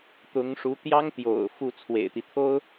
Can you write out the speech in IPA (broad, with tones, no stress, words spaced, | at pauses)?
t̪ʊ˧˥ŋʂu˧˥ t̪jɑ˥ŋ t̪jo̰˨˩ʊ̯ fu˥˩t͡sʰwḛ˨˩ɪ̯t̪i˦t̪ʰo˥ʊ̯